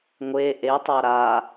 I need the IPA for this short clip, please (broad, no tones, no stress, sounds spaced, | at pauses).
ŋʷ e ʔ e tˤ a ɾ a